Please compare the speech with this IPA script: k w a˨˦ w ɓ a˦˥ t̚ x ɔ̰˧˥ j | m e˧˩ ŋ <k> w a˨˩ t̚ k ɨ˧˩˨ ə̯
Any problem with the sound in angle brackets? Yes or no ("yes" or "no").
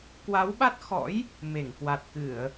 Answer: no